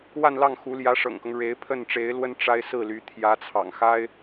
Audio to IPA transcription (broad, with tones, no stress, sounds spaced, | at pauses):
w a˥˧ n l ɑ˥˩ ŋ x u˧˥ l j ä˧˥ ʂ ɤ̰˨˩ ŋ k ɤ˦ ŋ ɻ e˧˥ ɪ̯ pʰ ə˥˩ n ʈ͡ʂ e˧˥ ɪ̯ l w ə˥ n ʈ͡ʂ a˥ ɪ̯ s ɹ̩˥˩ l y˧˥ t̪ʰ j ä˧˥ t͡sʰ ɑ̰˨˩ ŋ x a˥ ɪ̯